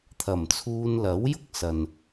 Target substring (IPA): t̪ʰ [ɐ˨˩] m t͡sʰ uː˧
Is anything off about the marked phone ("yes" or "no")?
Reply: no